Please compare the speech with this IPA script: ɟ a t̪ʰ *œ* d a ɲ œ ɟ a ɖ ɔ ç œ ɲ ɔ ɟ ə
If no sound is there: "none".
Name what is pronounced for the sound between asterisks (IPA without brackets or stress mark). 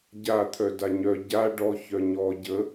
œ